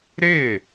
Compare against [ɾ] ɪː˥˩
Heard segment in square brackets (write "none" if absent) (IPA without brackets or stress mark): ɾ